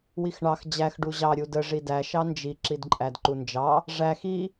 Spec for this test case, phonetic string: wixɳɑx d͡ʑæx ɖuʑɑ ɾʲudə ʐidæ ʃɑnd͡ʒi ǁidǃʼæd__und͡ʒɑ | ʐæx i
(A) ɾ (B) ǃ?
B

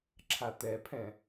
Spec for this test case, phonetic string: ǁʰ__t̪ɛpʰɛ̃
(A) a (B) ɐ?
A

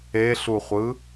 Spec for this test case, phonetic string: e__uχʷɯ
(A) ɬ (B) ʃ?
A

